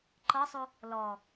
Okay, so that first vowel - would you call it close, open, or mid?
mid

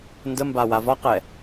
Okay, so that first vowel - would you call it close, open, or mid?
mid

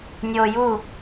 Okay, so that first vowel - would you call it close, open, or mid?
mid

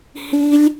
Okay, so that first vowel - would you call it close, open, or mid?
close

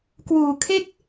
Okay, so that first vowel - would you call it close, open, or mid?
close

